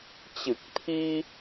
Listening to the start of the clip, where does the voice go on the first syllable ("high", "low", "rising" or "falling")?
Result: low